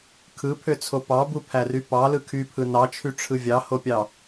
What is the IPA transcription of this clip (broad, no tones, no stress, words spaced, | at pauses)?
kʰɯpʰøt͡sʰo pɑbupʰæry pɑlɯ kʰypʰɯ nɑt͡ʃʰyʈ͡ʂʰɯ vʲɑhopʲɑ